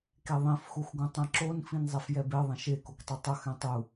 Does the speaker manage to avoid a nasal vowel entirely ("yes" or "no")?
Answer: no